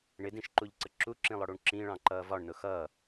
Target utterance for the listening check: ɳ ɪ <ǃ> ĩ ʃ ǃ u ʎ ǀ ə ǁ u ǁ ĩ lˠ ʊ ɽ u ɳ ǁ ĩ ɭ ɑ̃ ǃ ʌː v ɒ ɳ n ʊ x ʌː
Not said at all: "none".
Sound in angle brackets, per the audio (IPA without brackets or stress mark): d